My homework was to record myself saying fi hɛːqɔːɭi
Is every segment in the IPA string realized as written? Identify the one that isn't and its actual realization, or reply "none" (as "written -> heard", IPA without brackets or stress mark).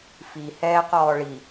none